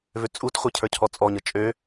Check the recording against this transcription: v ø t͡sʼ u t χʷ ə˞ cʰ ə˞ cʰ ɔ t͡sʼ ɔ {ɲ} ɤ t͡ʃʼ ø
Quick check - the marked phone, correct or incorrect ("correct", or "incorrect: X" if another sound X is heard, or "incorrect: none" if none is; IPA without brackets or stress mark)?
correct